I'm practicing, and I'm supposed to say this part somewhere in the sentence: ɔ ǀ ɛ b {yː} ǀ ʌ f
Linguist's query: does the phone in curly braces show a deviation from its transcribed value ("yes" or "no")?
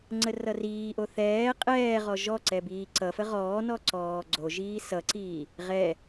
yes